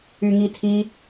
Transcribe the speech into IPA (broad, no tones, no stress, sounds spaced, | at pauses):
y ŋ i tʰ i